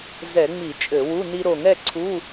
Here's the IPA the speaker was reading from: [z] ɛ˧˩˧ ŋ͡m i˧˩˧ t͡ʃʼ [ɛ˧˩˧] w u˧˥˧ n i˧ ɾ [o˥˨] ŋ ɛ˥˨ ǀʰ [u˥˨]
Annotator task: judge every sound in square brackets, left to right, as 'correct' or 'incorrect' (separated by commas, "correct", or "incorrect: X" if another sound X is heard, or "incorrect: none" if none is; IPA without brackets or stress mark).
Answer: correct, incorrect: ɘ˧˩˧, incorrect: o˧˩, incorrect: u˧˥˧